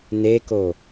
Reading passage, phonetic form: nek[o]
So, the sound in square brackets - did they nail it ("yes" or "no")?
yes